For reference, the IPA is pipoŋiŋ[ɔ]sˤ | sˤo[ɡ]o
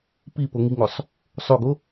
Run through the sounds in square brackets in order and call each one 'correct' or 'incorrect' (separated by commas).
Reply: incorrect, correct